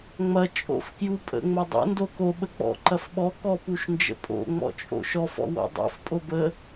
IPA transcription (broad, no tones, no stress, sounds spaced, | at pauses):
ŋ͡m ɐ t͡ʃʼ o̰ f k j u pʼ ə̰ ŋ͡m ɐ dˤ o̰ n d o k o ɓ ə k͡p ɔ̰ ǃ ɐ f ɓ ɔ k ɔ p u ʃ n d͡ʒ ə̰ pʼ o̰ ŋ͡m ɔ̰ t͡ʃʼ o̰ ʃ ɔ f ɔ̰ w o̰ dˤ o̰ f pʼ o b ə